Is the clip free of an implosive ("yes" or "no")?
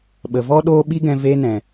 no